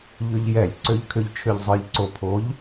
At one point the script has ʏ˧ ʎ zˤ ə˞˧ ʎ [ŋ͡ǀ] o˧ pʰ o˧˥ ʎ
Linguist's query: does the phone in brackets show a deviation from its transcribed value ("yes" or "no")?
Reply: yes